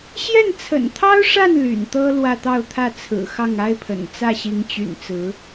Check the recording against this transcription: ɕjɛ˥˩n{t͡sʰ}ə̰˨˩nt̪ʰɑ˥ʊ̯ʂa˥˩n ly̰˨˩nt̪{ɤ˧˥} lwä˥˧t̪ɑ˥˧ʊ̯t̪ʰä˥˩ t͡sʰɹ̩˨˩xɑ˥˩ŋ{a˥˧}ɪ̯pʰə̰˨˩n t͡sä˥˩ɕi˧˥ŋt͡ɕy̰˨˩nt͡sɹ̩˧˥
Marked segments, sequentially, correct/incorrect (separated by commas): correct, incorrect, incorrect